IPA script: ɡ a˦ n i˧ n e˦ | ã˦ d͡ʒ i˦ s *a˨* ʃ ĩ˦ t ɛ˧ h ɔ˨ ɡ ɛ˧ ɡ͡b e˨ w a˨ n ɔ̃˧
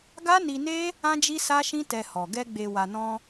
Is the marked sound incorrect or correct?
incorrect